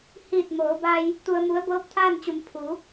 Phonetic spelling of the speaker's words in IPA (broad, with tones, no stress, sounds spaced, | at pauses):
h iː˧˩ t̚ m oː˩˧ b a˧ j | t̪ u˧ ə̯ m u˧˥ ə̯ b ɤː˧˥ p̚ t̪ʰ aː˥˨ n t͡ɕ u˩˧ m pʰ u˩˧